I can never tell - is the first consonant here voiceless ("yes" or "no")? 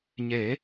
no